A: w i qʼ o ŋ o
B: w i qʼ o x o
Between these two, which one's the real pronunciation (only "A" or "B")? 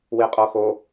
B